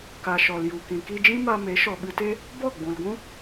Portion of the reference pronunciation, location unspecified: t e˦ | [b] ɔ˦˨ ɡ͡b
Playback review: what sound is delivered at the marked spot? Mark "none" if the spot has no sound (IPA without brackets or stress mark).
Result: b